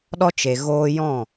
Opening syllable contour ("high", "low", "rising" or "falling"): high